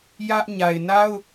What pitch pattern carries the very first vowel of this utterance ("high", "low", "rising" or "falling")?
high